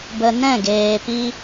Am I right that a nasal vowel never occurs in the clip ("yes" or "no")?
no